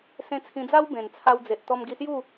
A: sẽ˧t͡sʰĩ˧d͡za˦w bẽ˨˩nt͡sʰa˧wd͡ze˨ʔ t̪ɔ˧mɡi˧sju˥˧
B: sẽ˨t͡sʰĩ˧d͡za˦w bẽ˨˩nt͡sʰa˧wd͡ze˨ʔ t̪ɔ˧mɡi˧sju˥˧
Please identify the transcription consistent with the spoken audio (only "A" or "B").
A